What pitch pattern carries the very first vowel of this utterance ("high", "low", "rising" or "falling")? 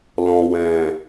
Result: low